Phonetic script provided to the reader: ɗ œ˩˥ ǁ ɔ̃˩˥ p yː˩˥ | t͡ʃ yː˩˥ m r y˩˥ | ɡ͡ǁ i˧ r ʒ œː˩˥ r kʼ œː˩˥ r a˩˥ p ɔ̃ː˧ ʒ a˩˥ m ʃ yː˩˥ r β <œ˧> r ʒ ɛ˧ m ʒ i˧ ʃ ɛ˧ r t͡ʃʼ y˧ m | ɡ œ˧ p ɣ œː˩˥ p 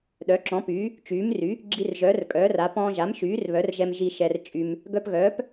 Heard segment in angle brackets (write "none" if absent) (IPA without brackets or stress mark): œ˩˥